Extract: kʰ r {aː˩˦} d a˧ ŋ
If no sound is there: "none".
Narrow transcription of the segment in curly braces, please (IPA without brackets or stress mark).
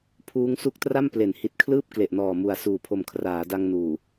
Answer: aː˩˦